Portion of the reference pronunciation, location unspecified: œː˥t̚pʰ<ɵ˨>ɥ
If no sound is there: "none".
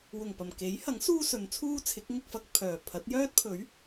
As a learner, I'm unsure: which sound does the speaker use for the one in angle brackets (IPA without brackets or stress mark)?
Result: ɵ˨˥